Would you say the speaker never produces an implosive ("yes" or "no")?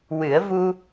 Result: yes